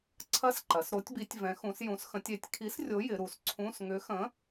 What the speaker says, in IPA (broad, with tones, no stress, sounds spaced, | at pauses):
ǀʰ ɐ˧˥˧ s ǃ ɐ˩˧ s ɾ o˨˥ tʲ b i˨˥ tʲ v ɛ̃˨˥ x ũ˨˥ s j ũ˨˥ s x ə̃˨˥ tʲ e˩˧ tʲ kʰ i˨˥ s rʲ o˨˥ j ɪ˩˧ ɾ u˩˧ s ǀʰ ũ˧˥˧ s ŋ ʏ˨˥ x ə̃˨˥